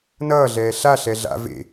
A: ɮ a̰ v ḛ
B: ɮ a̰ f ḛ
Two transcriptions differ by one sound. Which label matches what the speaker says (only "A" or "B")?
A